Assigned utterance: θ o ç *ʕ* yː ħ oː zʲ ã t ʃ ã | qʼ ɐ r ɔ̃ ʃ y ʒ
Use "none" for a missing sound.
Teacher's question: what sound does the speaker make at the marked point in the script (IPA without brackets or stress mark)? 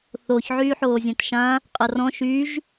ʕ